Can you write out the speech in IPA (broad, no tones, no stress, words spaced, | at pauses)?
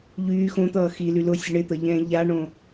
ʎyː xõt̪ʌː xily lʊsʲʊ ɳɪt̪ʌʎɛ̃ː ʎaɳõ